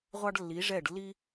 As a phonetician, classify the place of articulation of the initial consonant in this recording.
uvular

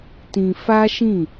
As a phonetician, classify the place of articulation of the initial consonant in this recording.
alveolar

